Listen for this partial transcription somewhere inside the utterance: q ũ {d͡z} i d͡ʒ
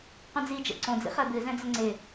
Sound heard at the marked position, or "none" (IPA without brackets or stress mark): d͡z